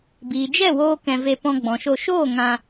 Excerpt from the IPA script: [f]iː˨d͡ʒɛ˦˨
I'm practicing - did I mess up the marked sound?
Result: yes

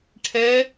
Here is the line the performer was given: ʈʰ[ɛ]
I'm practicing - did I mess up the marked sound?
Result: no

